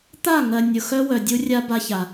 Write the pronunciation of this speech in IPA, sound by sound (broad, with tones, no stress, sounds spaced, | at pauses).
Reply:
t̪ a˦˨ ŋ ɜ˨ nʲ ʊ˨ x œ˦ w œ˨ dʲ u˦ rʲ a˦ b a˦ ç a˨